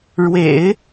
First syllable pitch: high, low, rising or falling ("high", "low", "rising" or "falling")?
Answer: low